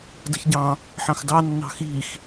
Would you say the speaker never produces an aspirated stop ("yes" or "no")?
yes